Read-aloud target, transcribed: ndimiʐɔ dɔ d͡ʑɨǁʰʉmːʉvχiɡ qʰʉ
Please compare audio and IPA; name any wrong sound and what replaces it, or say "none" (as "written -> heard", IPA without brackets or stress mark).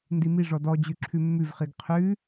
ɨ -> ʉ